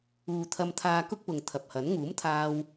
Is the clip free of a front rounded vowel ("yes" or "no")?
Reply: yes